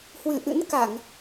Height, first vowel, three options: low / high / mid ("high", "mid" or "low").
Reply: high